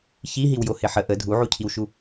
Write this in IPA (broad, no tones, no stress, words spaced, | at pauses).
çiɦiwjohɪ ħə ʔə dʱuʕucʰiwʃu